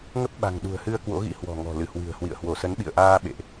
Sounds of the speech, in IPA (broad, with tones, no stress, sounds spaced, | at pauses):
ŋ ə˦˥ p̚ ɓ a̤˨˩ ŋ ɗ ṳ˨˩ ə̯ h ɨ˧ ə̯ k w o̰˧˥ ɣ ḭ˧˥ h w ɔ̤˨˩ ŋ ɔ̤˨˩ l ɨ˧˩ h w ɨ̤˨˩ ə̯ h w ḭ˧˨ ə̯ h w o˧˩ s ə˨˦ n ɓ ḭ˧˨ ə̯ ʔ aː˧ ɓ ḛ˧˨ ʔ